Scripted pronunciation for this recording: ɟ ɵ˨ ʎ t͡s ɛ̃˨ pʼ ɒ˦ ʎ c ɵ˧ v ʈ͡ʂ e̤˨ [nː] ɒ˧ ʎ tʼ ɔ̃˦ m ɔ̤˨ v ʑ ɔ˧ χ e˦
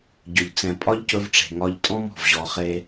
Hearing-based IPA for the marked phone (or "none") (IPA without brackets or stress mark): ŋ